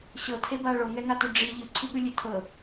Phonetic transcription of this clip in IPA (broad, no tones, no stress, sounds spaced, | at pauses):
ɕ ɤ tʰ e b a ɭ o ŋ ɛ ŋ a t u ɖ͡ʐ i ʎ ɯ ǀʰ i ɠ ɯ lʲ e tʰ ɤ